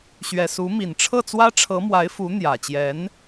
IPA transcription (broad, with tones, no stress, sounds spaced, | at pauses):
ɕ ɥ ɛ˨˩ s u˧˥ m i˨˩ n ʈ͡ʂʰ ɤ˥˩ t͡s w ä˥ ʈ͡ʂʰ ɤ˧˥ m w a˧˥ ɪ̯ f u˧˥ n̪ j ä˨˩ t͡ɕ j ɛ˧˥ n